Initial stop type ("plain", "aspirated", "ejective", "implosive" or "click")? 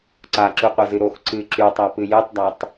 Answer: click